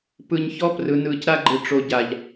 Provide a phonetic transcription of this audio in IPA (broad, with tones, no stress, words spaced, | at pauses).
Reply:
pɯ˨ɲçɔ˦ prɯ˨ nɯː˨cɾa˦ɡ͡ǃɯ˨ ʈ͡ʂo˨ ɟa˨ʎ